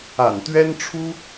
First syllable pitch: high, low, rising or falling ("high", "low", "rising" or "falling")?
low